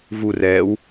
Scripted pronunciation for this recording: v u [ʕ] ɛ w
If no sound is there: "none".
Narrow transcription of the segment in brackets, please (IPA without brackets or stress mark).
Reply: r